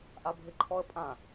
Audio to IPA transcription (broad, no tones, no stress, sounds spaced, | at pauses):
ʔ a bʱ ɪ ǃʰ ɔ ə̯ pʼ ã